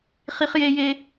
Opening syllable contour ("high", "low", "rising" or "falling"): high